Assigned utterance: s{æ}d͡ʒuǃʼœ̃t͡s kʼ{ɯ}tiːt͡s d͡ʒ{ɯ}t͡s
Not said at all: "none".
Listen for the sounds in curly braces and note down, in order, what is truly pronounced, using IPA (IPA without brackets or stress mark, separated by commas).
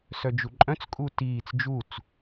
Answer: œ, u, u